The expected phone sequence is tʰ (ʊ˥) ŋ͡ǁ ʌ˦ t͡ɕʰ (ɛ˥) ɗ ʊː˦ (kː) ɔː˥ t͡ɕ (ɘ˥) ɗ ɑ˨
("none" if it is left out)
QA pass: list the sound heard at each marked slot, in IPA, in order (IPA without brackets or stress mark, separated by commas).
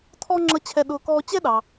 ɔ˥, ɛ˦, k, ɛ˥